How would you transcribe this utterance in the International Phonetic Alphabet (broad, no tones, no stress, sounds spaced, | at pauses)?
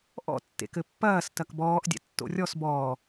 ʔ ɔ̰ tː ḛ k ɘ pː ɐː s t ɐ k b ɔː ʔ dʲ ɛ̰ tː o̰ rʲ ɔ s b ɔː